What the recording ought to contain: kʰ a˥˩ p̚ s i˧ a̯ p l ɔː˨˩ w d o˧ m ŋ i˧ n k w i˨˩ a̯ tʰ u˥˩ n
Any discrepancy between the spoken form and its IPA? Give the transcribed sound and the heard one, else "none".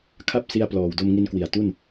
tʰ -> t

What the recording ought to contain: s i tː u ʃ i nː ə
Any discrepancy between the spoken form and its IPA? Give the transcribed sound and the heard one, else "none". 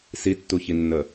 ʃ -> ç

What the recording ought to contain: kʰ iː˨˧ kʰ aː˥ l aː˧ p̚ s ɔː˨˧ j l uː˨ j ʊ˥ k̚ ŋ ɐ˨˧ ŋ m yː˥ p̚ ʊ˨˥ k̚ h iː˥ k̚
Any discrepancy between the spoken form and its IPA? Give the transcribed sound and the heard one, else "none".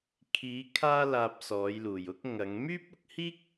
none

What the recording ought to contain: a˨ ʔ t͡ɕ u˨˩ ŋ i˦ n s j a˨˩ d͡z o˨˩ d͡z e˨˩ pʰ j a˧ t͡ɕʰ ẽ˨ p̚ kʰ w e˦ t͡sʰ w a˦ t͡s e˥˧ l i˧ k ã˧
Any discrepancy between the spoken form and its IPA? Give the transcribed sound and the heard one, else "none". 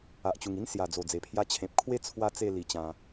k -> t͡ɕ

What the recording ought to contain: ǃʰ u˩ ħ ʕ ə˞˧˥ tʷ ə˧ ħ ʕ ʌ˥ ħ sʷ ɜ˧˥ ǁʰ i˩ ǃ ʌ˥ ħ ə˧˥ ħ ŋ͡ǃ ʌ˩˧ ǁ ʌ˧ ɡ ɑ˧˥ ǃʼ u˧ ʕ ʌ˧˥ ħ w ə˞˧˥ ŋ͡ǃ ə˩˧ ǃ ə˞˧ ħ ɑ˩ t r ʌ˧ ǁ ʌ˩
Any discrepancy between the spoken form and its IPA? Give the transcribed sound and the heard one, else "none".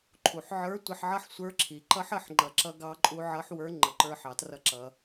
ɜ˧˥ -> ə˞˧˥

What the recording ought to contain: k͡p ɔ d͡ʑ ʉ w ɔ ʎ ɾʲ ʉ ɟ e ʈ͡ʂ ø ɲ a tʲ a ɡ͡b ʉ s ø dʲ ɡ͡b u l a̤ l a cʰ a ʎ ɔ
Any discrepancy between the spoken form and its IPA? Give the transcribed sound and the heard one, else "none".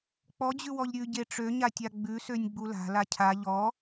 dʲ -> nʲ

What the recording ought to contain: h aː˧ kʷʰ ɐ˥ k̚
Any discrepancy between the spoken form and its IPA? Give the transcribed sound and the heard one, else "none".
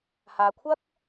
none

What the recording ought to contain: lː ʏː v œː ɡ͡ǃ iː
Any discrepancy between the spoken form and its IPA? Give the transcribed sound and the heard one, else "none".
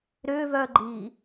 lː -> ɾ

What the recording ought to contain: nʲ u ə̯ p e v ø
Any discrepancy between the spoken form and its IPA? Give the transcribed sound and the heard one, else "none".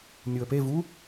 ø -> u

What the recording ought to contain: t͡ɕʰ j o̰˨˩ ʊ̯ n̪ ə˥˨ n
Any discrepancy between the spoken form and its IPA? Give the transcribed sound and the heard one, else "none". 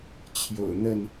none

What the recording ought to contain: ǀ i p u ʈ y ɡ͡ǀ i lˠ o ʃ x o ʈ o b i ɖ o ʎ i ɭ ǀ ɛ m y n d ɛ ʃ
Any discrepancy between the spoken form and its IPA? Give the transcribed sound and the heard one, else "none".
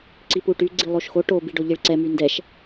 none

